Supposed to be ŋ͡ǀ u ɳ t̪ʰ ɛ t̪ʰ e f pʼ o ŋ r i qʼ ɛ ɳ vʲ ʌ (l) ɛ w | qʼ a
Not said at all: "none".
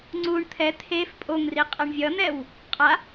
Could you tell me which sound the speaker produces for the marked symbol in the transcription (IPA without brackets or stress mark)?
n̪